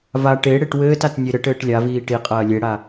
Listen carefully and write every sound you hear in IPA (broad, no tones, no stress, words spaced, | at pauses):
va ʈe ɽeʈwɘːtat nʲeɾɘʈɘːʈ lʲaviː ʈiqʼɐː lʲeɽa